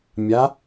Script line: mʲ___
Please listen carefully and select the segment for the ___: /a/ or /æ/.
a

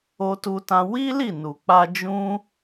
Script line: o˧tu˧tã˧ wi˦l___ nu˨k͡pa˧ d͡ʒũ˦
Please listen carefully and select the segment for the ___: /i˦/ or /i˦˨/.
i˦˨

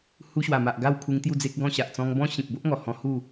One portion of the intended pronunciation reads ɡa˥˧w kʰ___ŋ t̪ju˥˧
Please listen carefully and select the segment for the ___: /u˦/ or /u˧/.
u˧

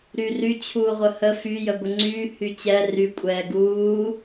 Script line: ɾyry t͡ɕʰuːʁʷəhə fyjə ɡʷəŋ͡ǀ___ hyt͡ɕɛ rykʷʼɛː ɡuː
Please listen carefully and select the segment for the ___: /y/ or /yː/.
yː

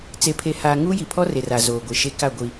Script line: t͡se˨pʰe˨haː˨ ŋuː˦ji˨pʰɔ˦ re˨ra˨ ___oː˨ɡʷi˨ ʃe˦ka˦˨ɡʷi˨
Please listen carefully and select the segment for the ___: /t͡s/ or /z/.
z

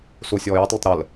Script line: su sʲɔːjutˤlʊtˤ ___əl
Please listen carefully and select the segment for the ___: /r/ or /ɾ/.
ɾ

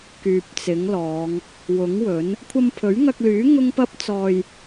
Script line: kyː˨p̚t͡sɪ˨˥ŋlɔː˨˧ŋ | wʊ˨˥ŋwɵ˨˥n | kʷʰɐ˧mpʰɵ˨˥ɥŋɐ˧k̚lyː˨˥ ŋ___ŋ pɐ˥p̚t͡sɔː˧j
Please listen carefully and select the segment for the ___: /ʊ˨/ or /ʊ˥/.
ʊ˥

